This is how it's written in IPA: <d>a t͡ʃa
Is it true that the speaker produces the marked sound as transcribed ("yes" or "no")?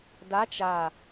yes